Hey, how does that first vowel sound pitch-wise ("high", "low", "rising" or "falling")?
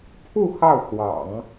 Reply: falling